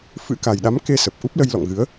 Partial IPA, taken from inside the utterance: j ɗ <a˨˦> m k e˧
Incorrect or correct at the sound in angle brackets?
correct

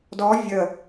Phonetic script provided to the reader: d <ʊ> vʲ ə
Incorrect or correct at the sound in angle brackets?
incorrect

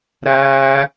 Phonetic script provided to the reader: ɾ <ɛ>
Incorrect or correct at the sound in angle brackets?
incorrect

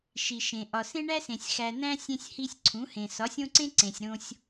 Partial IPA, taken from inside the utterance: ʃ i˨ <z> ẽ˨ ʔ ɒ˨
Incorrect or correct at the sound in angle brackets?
incorrect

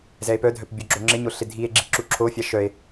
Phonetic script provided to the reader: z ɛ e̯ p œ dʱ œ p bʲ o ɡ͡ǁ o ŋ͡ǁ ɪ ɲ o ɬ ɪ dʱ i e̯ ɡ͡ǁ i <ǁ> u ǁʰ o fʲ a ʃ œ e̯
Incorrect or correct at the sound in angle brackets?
correct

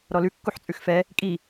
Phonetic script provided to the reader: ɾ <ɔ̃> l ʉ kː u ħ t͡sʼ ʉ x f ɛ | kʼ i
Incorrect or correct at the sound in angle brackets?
incorrect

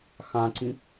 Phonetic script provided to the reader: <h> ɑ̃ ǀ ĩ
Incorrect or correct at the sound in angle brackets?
incorrect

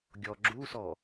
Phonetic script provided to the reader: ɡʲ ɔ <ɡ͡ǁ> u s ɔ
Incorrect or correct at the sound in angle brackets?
correct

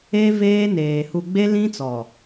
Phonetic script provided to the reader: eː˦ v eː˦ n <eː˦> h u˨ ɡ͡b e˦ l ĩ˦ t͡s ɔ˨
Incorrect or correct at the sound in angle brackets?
incorrect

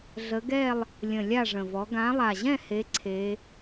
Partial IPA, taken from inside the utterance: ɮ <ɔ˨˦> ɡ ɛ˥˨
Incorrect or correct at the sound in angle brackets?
incorrect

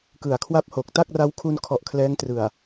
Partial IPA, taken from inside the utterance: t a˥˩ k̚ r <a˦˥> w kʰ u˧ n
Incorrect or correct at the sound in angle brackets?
correct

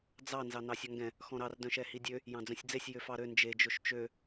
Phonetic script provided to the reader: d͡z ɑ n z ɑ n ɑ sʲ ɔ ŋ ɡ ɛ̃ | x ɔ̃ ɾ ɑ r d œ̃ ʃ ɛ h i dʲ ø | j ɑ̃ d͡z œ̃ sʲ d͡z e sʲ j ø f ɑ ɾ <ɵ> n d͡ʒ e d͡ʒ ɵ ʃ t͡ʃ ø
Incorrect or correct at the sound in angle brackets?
incorrect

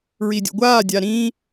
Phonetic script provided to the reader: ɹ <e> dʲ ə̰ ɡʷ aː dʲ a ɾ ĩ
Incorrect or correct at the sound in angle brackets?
incorrect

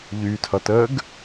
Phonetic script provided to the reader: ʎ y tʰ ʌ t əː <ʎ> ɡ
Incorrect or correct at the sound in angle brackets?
incorrect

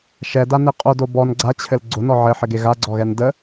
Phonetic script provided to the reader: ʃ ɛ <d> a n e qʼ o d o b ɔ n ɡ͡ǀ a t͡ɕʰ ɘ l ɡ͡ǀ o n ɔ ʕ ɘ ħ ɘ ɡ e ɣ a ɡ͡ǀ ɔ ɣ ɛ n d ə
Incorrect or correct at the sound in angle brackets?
correct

